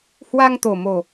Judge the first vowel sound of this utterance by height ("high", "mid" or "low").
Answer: low